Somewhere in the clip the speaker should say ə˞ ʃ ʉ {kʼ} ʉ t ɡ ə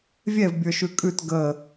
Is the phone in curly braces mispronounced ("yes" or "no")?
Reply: no